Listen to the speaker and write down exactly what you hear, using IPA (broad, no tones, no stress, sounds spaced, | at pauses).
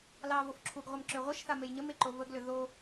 l ɑ v o f ǁʰ u ɡ ʁʷ ə m ǁ ʏ ʁʷ ə ʃ θ a m e j ɲ ə m e ǃ o v ə ɡ l ʏ ð o